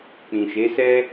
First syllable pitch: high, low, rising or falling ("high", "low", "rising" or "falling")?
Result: low